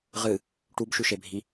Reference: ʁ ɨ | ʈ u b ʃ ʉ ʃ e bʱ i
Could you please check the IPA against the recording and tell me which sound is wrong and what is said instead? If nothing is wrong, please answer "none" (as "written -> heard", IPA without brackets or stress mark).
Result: none